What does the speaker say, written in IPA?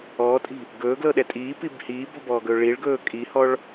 ɔː tʼ i̤ | ɡ ɵː ɡ l ɤ ɗ ɛ tʼ iː p i b h iː b ɔ̤ b ɔː ɡ ɵː ɭ i ɭ ɡ ɵː kʼ i h ɔ ɭ

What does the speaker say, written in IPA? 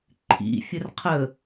ǃʰ ḭ fʲ ə r qʰ ə

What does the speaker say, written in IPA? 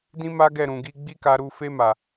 d ĩ˦ m a˦ ɡ ɛ˦˨ ɾ ũ˨ ɡ i˧ ɡ͡b i˦ k a˧ ɾ u˧ f e˧ m a˨

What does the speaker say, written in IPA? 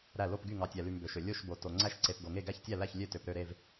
ɾ æ˧˩ l o˧˩ p ɡ y˧˩ ŋ ɑ˩ tʲ æ˩ l y˩ m b ø˩ ʃ ø˩ lʲ o˧˩ ʃ b o˩ t o˩ ŋ͡ǀ æ˧˩ ʃ ǀ e˩ p ɡ o˩ ŋ e˧˩ ɡ æ˧˩ ç tʲ æ˧˩ l æ˧˩ ç lʲ ø˧˩ t ø˩ p ɾ ø˧˩ ɾ e˧˩ v

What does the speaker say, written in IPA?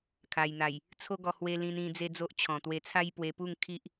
kʰ a˨˩ j n̪ a˨˩ j | t͡sʰ o˦ ɡ ɔ˧ h w e˧ l ĩ˧ n ĩ˧ d͡z e˦ d͡z o˦ ʔ t͡ɕʰ ɔ̃˨˩ t̪ w e˧ t͡sʰ a˦ j p w e˧ p u˥˧ ŋ kʰ i˦ ʔ

